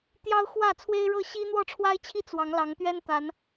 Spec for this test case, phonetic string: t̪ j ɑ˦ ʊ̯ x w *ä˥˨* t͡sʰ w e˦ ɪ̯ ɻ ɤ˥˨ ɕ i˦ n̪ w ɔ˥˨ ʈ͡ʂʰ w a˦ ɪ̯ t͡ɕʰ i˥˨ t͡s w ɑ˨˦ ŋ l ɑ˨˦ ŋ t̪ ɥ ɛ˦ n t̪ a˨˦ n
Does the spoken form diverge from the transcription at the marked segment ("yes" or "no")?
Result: no